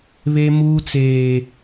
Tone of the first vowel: high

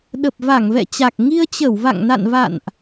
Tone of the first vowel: low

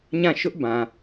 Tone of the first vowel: falling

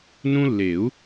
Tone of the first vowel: high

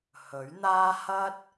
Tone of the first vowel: rising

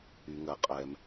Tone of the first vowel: low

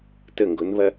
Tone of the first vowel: falling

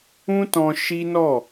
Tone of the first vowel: high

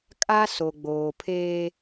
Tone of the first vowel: high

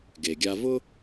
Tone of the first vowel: low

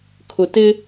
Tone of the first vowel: low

